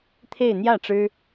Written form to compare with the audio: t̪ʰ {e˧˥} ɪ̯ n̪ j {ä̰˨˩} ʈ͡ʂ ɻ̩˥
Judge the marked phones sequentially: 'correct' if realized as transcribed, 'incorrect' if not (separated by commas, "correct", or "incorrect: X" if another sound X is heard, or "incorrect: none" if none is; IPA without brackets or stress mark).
incorrect: e˥˧, incorrect: ä˥˩